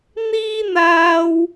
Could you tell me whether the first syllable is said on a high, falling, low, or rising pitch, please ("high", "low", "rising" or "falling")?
high